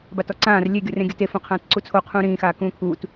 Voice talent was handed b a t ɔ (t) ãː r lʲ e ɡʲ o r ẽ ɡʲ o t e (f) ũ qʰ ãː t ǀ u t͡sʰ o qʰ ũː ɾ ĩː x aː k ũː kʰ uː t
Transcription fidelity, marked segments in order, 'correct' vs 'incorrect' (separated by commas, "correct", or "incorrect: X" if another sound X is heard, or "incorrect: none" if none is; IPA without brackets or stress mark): incorrect: ǀ, correct